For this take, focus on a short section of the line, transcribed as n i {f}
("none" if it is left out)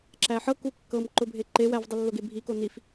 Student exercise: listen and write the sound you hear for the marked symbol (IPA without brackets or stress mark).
f